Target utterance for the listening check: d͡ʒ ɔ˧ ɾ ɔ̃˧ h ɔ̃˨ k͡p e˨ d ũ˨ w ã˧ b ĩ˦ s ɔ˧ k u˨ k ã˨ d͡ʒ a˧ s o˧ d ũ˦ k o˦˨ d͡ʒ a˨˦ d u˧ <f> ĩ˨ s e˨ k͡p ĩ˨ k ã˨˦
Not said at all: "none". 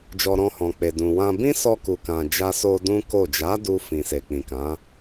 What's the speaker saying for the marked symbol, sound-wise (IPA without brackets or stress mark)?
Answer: f